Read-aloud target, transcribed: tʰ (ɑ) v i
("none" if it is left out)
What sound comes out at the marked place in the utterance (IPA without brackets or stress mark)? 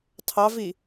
ɑ